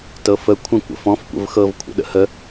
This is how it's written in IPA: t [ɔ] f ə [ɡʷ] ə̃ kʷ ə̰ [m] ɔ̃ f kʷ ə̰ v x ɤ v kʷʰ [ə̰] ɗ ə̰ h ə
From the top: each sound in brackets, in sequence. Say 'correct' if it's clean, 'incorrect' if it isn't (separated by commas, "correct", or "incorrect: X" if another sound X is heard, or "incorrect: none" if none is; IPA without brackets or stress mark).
incorrect: ɤ, incorrect: kʷʰ, incorrect: f, correct